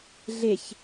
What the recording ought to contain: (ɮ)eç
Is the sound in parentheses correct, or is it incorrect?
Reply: correct